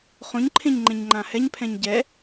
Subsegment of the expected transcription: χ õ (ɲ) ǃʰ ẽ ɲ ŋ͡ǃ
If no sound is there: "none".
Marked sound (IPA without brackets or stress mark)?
ɲ